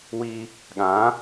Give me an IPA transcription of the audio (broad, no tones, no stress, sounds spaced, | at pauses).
w i | ɠ ã